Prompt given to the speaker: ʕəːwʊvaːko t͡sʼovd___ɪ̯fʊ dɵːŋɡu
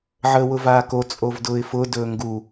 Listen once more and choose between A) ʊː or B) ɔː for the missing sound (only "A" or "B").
A